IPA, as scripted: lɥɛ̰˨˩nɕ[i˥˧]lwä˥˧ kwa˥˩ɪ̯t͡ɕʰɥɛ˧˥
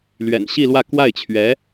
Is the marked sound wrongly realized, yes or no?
no